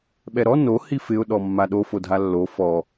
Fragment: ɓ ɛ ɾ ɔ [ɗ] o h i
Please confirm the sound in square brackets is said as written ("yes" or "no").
no